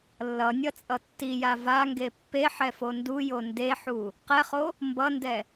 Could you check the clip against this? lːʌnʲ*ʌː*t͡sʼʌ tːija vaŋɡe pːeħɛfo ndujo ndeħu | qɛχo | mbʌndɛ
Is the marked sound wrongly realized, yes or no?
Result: yes